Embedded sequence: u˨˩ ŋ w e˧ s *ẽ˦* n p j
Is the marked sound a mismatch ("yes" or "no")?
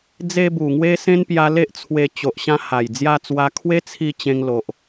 no